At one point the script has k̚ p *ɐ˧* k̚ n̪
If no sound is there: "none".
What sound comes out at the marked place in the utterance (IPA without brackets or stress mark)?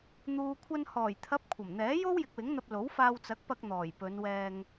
ɐ˧